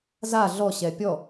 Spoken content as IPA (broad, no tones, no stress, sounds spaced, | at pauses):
z a ɮ ɔ ɕ ɛ pʲ ɔ